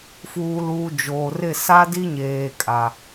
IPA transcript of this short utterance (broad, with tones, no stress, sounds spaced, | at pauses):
f uː˨ l uː˨ d͡ʒ oː˨ r ɪ˦˨ s a˦ d i˦ ɲ eː˨ kʼ a˨